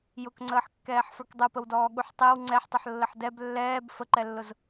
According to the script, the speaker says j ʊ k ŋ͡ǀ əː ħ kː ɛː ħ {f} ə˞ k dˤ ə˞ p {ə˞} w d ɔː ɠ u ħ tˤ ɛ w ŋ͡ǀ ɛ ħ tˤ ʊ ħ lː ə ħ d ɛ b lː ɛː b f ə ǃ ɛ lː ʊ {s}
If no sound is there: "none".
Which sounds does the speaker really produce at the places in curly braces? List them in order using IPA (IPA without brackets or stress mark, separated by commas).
f, ə, z